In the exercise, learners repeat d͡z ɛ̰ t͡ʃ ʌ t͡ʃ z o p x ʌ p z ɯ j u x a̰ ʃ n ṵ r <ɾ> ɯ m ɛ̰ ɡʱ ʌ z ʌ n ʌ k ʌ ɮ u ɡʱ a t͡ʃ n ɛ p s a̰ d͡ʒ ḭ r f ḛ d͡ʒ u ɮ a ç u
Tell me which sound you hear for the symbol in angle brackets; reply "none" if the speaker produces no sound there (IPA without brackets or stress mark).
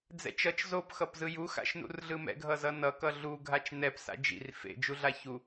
ɮ